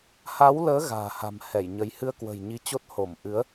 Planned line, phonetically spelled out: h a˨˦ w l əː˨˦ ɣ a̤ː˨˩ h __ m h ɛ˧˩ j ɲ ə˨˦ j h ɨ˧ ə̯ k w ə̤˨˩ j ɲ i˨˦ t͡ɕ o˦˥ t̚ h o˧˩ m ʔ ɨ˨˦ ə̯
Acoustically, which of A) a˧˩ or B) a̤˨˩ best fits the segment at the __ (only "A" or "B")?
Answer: B